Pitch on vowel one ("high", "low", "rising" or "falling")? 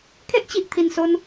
high